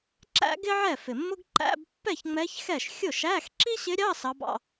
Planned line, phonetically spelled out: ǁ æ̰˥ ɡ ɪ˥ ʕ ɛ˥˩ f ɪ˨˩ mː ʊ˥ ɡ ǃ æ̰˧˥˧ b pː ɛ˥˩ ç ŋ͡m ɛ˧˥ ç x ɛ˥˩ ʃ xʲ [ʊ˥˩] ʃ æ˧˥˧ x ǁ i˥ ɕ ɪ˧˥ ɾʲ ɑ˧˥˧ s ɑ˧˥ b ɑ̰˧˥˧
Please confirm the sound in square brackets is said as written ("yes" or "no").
yes